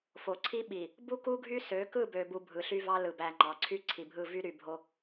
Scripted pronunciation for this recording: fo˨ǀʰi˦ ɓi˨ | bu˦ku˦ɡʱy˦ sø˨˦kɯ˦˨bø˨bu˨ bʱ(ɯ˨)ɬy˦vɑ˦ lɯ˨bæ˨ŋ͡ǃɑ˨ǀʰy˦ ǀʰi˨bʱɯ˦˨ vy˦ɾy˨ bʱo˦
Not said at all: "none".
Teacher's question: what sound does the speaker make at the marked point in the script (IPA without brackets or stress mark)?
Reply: ɯ˨